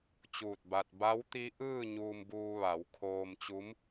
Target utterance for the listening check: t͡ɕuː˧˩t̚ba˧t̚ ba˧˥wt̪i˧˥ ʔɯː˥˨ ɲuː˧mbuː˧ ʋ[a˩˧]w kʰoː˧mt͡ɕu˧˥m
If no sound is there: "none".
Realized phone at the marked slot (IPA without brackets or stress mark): a˩˧